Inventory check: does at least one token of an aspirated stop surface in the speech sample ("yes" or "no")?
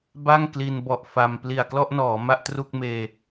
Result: no